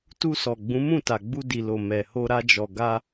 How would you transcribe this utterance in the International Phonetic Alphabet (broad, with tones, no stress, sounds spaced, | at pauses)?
t u˧ s ɔ˨ ɡ͡b ũ˨˦ m ũ˦˨ t a˨ ɡ͡b u˧ d i˨ l o˨ m ɛ˨ h o˧ ɾ a˧ d͡ʒ ɔ˨ ɡ a˧